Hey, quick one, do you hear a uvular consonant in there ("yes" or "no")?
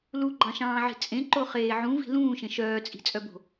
yes